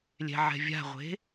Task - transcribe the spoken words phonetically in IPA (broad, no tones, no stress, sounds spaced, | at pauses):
lʲ ɛ̤ ʕ ɛ̤ vʲ a̤ ʁʷ e̤